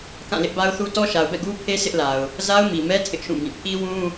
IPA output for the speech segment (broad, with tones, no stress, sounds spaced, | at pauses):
k ã˦˨ l ɪ˦ ʔ b a˦ ʊ̯ θ u˦ t ɔ˦ ʃ a˨ ʊ̯ b ɛ̰˦˨ ɡ u˦ pʰ e˦ s ɪ˦ ʔ l a˨ ʊ̯ | z a˦ ʊ̯ m i˨ m ɛ˦ tʰ ɪ˦ ʔ ʃ ũ˦˨ b ĩ˦˨ pʰ i˦ w ũ˦